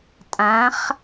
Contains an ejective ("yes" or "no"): yes